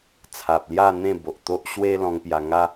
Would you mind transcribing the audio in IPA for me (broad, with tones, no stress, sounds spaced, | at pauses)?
t͡sʰ a˨ p̚ l j a˥˧ n̪ ẽ˥˧ b o˨ ʔ t̪ o˦ ʔ ɕ w e˦ l ɔ̃˧ ŋ p j a˧ ŋ a˦